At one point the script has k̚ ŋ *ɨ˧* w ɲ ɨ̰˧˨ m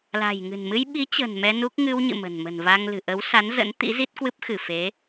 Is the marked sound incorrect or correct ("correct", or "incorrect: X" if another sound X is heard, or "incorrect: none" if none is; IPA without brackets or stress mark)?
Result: correct